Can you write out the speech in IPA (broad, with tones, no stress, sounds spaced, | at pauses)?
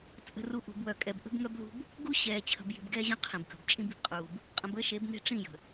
t͡sʼ ə̤˨ r u˨ ʔ ṳ˨ b w œ˨ kʼ ɛ˨ b ʔ ə̤˦ b ŋ œ˦ b l ṳ˦ b | ɡ u˦ ɕ ɛː˨ t͡ɕʰ ə̤˨ b j i̤˨ b ɡ ɛː˦ ʑ ɐ̃˦ qʰ ĩ˨ b k ə̤˨ b t͡ʃʼ ĩ˦ b i̤˨ b qʼ uː˨ b | qʼ ə̃˨ b əː˦ ʃ e˨˦ b n e̤˦ ʈ͡ʂ ĩ˦˨ j ə̤˨